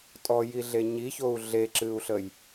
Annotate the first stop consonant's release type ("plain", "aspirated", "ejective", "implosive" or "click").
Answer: ejective